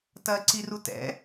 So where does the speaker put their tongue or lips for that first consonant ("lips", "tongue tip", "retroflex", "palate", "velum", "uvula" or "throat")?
tongue tip